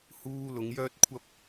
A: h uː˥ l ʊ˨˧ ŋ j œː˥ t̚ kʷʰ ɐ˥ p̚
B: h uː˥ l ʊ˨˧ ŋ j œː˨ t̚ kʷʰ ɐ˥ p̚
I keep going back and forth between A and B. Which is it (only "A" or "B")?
A